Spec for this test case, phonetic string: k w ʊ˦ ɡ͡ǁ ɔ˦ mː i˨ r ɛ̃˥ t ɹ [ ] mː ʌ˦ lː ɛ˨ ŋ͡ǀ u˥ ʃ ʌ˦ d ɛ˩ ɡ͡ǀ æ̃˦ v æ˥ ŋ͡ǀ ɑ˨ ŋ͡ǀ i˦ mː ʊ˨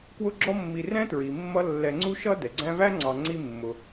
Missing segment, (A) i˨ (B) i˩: B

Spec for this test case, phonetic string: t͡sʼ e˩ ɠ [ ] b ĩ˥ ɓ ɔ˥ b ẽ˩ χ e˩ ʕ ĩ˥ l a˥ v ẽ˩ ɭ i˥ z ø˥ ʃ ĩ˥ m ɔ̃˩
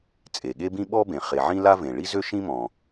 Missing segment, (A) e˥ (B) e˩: A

